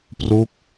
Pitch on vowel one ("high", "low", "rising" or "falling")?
falling